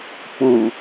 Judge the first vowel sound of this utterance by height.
high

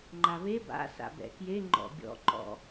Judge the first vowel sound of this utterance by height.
low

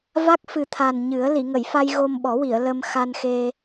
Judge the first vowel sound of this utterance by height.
low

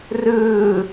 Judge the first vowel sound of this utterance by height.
high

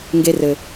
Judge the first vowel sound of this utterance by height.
mid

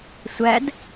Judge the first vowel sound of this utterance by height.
low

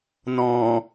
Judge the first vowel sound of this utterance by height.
mid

